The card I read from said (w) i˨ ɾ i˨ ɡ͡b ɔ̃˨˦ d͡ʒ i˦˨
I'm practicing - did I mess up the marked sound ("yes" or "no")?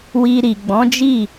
no